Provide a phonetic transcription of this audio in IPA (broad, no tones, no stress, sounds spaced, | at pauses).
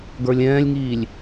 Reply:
ɡ ə˞ lʲ ɛ̃ː lʲ ŋ iː lʲ